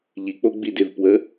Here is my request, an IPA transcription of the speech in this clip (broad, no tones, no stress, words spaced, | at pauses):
ʎik͡po ɡ͡bidɪvpwə